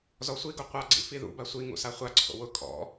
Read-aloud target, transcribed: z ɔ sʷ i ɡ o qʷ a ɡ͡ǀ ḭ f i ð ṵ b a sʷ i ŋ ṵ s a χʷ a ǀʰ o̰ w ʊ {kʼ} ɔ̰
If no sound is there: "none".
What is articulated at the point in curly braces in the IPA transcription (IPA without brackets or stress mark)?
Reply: kʼ